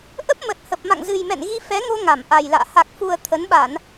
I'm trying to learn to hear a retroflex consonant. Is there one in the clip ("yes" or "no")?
no